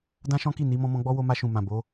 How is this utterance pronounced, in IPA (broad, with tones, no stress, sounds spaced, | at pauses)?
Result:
d ã˦ ʃ ɔ̃˦ k i˦˨ n i˨˦ m ɔ̃˧ m ɔ̃˧ ɡ͡b ɔ˦ w o˧ m a˧ ʃ ũ˨ m ã˨ b o˨˦